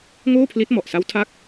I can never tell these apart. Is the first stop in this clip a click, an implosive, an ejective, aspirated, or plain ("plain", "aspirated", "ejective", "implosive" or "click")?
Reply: aspirated